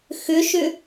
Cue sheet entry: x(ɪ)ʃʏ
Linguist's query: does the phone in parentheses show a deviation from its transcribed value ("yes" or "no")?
yes